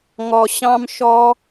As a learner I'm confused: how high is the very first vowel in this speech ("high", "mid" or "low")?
mid